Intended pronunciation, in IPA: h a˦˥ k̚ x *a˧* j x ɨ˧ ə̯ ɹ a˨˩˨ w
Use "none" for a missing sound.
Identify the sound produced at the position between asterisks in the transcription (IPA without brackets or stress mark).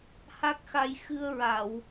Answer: a˧